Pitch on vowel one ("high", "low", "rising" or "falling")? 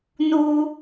high